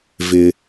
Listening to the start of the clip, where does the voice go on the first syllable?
low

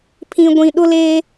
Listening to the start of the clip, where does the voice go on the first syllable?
low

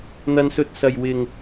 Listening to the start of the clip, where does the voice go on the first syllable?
high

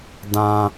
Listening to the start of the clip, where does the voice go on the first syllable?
high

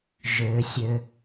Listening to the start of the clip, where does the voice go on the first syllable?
low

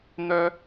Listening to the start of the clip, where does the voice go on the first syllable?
low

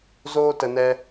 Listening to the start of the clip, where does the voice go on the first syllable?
high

